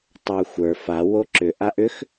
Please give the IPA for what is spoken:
tˤ ə˞ xʷ ə˞ f a w o ǁ ʏ ʔ a ʔ ʏ x

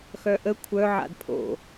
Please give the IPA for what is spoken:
x œ ʔ ə kʷʰ œ ʕ a̰ d pʰ o̰

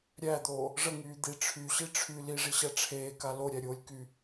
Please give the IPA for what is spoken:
ɾʲ æ d̪ oː | ʐ ə ŋ yː d̪ i ʈ͡ʂʰ y ɕ i ʈ͡ʂʰ y l i ʐ i ɕ æ ʈ͡ʂʰ eː k a l o ɾʲ æ ɾʲ oː lʲ k y

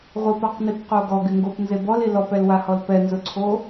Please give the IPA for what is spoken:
ʁʷ i p a q n i p q o ɡ ɔ ɡ ɪ ŋ ɡ o p n z e b ɔ l i l ɔ p ɛ l w a h ɔ l p ɛ n z ʊ ǀʰ o

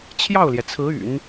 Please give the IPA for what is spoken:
t͡ɕʰ j ɑ˥˩ ʊ̯ l j ɛ˩ t͡sʰ ɹ̩˧˥ y̰˨˩˦ n

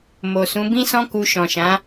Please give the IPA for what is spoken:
m o˨ s ũ˨˦ b ĩ˦ s ɔ̃˦ k u˧ ʃ ɔ̃˨ ʃ ã˨˦

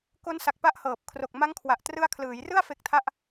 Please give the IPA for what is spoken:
k o˦˥ n s a˨˩ k̚ p a˦˥ ʔ h ɤː˨˩ p̚ kʰ r o˨˩ k̚ m a˦˥ ŋ kʰ w a˨˩ ʔ t r ɯ˦˥ a̯ kʰ l ɯː˩˦ j r ɯ˥˩ a̯ f e˦˥ k̚ tʰ a˥˩ ʔ

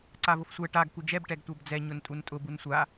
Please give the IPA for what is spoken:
ǀ a v ʊ f sʷ ɛ ʈ a ɡ k u d͡ʒ ɛ b ʈ ɛ ɡ tʷ ə˞ b d͡z ɛ ɲ ʊ n tʼ u n tʼ ʊ b u n sʷ a

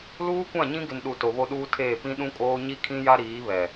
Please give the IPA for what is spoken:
l uː˦ kʷ ã˦˨ ɲ ĩ˦ ɡ ɪ˨ n ɗ u˨ t o˨ β o˦ ɗ uː˦ tʰ eː˦˨ p ĩ˦ ɗ ũ˦ kʼ oː˦ ɲ i˦ kʰ ĩ˦ j a˦ ɾ iː˨˦ β ɛ˨

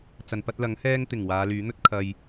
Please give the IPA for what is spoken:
t͡s ɐ˨ n p ɐ˧ t̚ l ɐ˨˥ ŋ h ɛː˧ ŋ t̪ ɪ˨˩ ŋ w aː˨˧ l yː˨˥ n̪ ɵ˥ t̚ kʰ ɐ˧ j

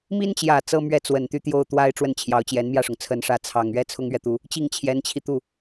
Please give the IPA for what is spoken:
m i˥ n t͡ɕ j ä˨˩ t͡s ɤ˥ m ɥ ɛ˥˩ t͡s w ə˨˩ n t̪ y˥˧ t̪ j o˥˩ ʊ̯ t̪ w a˥ ɪ̯ ʈ͡ʂ w ə˥˩ n t͡ɕʰ j ɑ˧˥ ʊ̯ t͡ɕ j ɛ˧˥ n m j ä˥˩ ʂ ʊ˩ ŋ t͡sʰ ə˧˥ n ʂ ä˧˥ t͡sʰ ɑ˨˩ ŋ ɥ ɛ˥˩ t͡sʰ ʊ˥ ŋ ɥ ɛ˨ t̪ u˧˥ | t͡ɕ i˥˩ ŋ t͡ɕʰ j ɛ˧˥ n t͡ɕʰ i˧ t̪ u˥˩

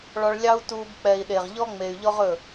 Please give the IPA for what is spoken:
ɭ ɔ˧ ɭ lʲ ɑ˦ u̯ t u˧ b k͡p ɛ˨ i̯ ɗ e˨ ʁ ʎ ɔ˦ ŋ͡m e˨ y̯ ʎ ɔ˦ ʁ ɵ˦˨

